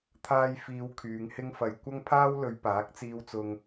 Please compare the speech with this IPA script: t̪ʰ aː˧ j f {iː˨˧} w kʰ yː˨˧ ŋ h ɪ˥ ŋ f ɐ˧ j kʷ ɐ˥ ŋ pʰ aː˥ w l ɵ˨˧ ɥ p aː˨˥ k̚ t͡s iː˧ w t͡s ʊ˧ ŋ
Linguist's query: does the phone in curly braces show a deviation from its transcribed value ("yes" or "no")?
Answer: no